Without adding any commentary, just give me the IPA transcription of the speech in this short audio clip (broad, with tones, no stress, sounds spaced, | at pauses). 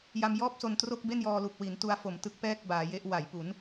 j a˧ m j ɔː˥˩ p̚ s o˧ n t r o˥˩ k̚ b e˥˩ n j ɔː˧ l u˨˩ k̚ w i˩˦ n t u˧ a̯ f o˨˩ m t ɯ˥˩ k̚ p ɛː˥˩ k̚ b aː˩˦ j e˦˥ ʔ w a˩˦ j p u˩˦ n